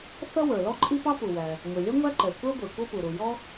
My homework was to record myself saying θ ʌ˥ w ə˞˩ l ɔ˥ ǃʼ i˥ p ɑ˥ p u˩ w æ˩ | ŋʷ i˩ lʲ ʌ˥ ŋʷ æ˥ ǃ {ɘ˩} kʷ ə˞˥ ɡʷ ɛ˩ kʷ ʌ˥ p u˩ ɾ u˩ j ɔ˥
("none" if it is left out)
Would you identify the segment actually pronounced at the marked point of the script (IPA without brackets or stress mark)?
ɛ˩